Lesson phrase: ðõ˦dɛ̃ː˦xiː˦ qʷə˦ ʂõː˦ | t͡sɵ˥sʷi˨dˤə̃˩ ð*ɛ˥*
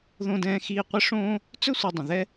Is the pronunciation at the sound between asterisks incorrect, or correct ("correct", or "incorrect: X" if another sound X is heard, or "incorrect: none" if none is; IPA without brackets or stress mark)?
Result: correct